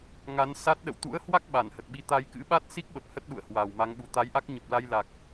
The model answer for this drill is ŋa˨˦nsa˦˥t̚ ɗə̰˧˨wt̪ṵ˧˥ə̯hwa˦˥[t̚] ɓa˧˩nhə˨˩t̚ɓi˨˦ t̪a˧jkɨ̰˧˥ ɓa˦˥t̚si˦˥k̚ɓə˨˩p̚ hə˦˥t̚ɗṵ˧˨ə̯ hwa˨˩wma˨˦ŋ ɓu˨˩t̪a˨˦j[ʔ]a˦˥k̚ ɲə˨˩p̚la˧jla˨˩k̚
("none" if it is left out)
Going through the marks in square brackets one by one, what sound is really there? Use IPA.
k̚, ʔ

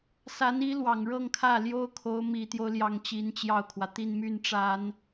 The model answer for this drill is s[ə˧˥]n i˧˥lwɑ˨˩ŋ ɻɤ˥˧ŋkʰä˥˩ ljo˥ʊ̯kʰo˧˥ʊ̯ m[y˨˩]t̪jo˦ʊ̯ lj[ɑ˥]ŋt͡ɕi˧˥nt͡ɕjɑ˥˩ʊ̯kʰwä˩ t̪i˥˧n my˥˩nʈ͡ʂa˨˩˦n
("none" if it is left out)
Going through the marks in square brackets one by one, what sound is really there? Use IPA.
a˧˥, i˨˩, ɑ˥

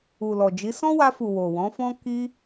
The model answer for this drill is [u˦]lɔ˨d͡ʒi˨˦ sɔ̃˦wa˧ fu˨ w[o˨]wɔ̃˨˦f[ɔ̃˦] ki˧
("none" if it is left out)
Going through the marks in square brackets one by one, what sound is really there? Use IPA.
u˨, o˨, ɔ̃˦

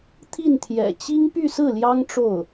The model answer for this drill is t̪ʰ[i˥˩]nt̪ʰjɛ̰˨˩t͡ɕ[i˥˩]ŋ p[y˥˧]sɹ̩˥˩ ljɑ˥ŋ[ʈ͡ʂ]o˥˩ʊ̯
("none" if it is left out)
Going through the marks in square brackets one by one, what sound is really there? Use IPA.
i˥˩, i˥, y˥˧, ʈ͡ʂ

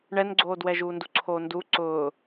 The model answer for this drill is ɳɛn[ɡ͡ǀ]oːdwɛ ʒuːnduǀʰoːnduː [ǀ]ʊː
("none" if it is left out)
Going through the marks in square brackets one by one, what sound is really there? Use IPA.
ɡ͡ǀ, ǀ

